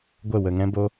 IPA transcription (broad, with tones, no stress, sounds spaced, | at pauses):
ɡʷ ə˦˨ w ə˧ ŋ ɛ̃˦ b o˦